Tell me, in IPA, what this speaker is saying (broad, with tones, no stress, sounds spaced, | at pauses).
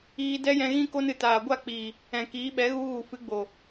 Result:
iː˧ d ɛ˦ j ɛ̃˧ ɣ ĩ˦ k o˦ n ɨ˨ t aː˨ ɡʷ a˦˨ k͡p iː˨ | ɛ̃˨ k iː˨˦ ɓ ɛ˨˦ ɣ u˧ ɣ u˨ f ɨ˨˦ ɡ͡b o˨